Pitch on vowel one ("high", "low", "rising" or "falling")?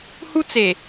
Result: high